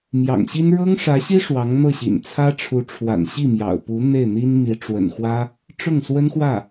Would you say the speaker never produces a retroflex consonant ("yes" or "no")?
no